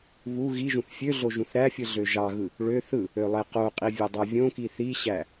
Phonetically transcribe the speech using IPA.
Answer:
βu ɣiʒũθ fʲøɮo ʒũθɾæfʲɯ ɮøʒɑɣɯ | ɭø θɯ | ølˠeqoqʼi vʲedˤævʲõki θiɕæ

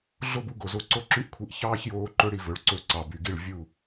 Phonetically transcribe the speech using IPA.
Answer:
ɮo˦bu˧ɡo˨zo˧ ǀo˦ǁy˦ʔkʷʰi˧ʔ çɑː˦çjoː˧ ǃɵ˦ɽi˧ vɵ˨˦ɭǀɵ˧ ǀɑ˨ by˨ɡi˦˨ɭ vʲu˦˨

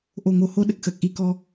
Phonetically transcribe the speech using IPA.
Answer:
ʔo˨˩ŋo˨˩ho˧ ɗə˦˥k̚xəː˨˩k̚ʔi˧˥ kɔ˧

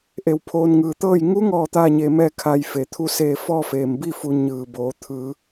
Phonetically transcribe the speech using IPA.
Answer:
ʔe˧˩wpʰoː˧nŋɯː˧˩t̪ɤː˥˨j ŋu˧˥ŋɔː˧˩ t̪aː˥˨ɲe˧mɛː˥˨ kʰa˧jfe˩ t̪ʰu˧seː˧˩ fɔː˥˨feː˩mbi˥˨fu˩˧ ɲɯː˧˩boː˩˧ t̪ʰɯː˩˧

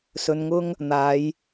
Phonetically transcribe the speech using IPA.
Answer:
sɵ˧nŋʊ˥ŋ | n̪aː˨˧j

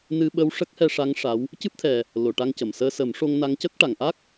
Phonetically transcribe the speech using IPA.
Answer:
nɨ˧ ɓə˧w ʂə˦˥k̚hɛ˧ʂa˧˥ŋ ʂa˧˥w | cɨ˦˥p̚t̪ʰɛ˨˩ | lo˨˩˨ʈa˧ŋcə˨˩˨msəː˧ sə˨˩˦mʂo˧ŋna˧˥ŋcə˦˥k̚ ʈa˨˩˨ŋʔa˦˥k̚

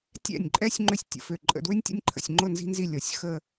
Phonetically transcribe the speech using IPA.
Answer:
tʲɛ̰˧˩nʲǃʼɛ˧sʲ ŋ͡ǃʏ˥sʲ tʲə̰˩˧fø˧˩ ǃʼə̰˧˩dwʏ˥nʲtʲə̰˥˧nʲǃʰə̰˧˩sʲ ŋ͡ǃʊ˥˧ nzi̤˥nzi˥˧ lʲɔ˩˧sʲ xə˥˧

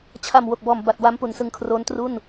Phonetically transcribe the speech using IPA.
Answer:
t͡ɕʰa˨˩m wo˨˩k̚bɔː˨˩mba˨˩t̚ wa˦˥mpu˨˩nsɯ˧ŋkʰroː˦˥n tru˥˩n

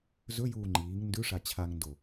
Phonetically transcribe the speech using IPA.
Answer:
zɵjuː ŋ͡ǃiːŋ ndʉʂa t͡ɕʰaŋndo

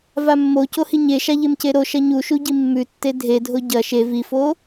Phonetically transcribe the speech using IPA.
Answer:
vamːoco hiɲeʃa ʎemceɾoʃɐ ɲuʃu ɟimːʉtːe dʱedʱo ɟɐ ʃe vifo

